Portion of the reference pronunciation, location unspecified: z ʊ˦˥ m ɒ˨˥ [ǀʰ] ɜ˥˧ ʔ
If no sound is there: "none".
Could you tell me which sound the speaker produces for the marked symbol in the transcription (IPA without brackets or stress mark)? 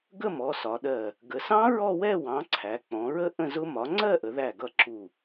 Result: ŋ͡ǀ